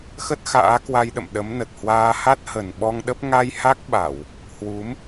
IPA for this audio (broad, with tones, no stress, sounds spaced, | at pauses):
x ə˦˥ t̚ x a̰ː˧˥ k w a˧ j ɗ ə̰˧˨ m ɗ ə˨˦ m n ə˨˩ t̚ h w aː˧ h a˦˥ t̚ h ə˨˩ n ɓ ɔ˧ ŋ ɗ ə˦˥ p̚ ŋ a˧ j h a˦˥ k̚ ɓ a˧˩˨ w | h w u˨˦ m